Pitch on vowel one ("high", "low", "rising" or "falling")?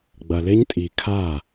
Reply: low